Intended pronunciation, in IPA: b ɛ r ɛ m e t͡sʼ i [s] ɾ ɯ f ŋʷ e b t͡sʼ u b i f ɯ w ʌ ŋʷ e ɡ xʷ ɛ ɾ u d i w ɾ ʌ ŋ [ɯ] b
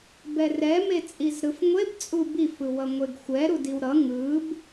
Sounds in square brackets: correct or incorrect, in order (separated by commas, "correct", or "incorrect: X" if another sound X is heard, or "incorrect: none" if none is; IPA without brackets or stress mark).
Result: incorrect: z, correct